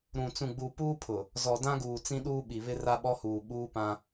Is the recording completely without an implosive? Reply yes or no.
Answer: no